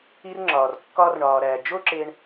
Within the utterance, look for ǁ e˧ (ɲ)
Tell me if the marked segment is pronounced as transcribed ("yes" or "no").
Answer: no